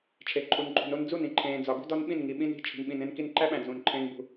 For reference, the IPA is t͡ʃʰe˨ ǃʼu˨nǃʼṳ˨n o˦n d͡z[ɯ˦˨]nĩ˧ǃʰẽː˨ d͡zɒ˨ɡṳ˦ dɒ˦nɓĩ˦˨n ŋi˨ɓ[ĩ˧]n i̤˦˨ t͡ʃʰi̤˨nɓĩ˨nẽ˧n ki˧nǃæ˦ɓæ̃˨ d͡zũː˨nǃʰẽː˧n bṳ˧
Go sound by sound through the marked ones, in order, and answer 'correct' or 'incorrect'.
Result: incorrect: u˦˨, correct

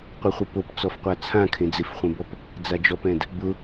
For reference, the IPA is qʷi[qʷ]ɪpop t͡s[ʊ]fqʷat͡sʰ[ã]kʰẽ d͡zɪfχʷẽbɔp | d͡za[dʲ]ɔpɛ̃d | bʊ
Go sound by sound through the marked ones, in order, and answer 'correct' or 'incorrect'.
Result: incorrect: χʷ, incorrect: ɔ, correct, incorrect: d͡ʒ

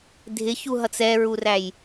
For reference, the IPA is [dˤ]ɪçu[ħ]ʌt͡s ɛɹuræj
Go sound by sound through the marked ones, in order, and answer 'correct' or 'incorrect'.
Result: incorrect: dʱ, incorrect: ɦ

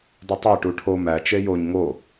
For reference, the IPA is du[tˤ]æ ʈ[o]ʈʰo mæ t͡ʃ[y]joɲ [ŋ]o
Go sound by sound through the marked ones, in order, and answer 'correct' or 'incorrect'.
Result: correct, incorrect: u, incorrect: e, correct

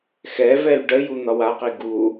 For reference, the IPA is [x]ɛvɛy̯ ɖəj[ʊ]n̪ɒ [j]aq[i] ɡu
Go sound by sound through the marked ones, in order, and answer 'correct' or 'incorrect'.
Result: correct, incorrect: u, incorrect: w, correct

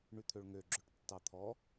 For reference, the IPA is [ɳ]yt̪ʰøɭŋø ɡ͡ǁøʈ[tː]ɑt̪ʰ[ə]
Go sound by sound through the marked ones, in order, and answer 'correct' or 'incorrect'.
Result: correct, correct, incorrect: ɔ

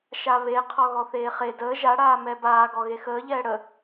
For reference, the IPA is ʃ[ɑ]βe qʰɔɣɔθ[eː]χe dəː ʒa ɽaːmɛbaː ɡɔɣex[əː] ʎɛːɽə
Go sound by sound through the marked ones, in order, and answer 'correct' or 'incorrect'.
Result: incorrect: a, correct, correct

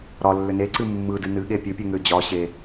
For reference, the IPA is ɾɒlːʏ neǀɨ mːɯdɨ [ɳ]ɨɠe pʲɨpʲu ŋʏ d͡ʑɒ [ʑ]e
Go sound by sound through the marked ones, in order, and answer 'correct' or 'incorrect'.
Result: incorrect: n, incorrect: ɕ

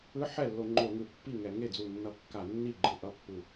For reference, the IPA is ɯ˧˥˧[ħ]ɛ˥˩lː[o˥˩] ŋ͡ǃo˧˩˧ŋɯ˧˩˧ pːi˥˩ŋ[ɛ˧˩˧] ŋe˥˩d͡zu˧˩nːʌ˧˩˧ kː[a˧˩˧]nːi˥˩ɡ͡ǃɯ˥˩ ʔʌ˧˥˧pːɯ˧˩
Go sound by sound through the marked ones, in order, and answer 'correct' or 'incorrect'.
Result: correct, incorrect: o˧˩˧, correct, correct

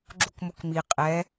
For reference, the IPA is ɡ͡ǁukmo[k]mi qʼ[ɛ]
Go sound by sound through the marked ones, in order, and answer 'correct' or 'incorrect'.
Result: correct, correct

